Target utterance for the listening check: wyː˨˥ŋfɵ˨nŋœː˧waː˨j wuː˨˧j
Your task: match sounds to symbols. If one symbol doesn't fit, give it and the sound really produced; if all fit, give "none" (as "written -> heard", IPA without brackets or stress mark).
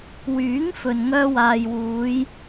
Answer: none